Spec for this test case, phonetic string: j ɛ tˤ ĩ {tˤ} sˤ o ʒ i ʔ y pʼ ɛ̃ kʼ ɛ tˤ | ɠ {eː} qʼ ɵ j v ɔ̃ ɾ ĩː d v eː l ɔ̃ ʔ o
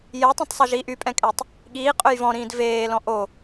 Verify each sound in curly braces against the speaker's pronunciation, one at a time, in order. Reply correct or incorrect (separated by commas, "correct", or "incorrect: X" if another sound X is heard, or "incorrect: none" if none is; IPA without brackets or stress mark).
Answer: correct, incorrect: iː